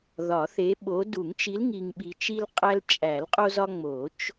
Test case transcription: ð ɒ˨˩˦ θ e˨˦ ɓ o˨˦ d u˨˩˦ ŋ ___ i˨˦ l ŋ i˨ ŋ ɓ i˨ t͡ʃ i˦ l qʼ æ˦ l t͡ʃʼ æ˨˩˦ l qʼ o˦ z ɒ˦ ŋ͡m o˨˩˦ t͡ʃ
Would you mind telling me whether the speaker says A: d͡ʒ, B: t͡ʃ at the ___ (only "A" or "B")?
B